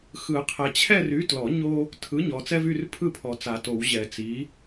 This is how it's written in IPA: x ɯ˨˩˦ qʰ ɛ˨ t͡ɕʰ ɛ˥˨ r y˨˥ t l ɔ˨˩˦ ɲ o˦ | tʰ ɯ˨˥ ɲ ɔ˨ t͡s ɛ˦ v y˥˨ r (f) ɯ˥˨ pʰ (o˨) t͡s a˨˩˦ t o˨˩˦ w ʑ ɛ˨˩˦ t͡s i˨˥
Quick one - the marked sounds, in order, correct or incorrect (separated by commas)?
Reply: incorrect, incorrect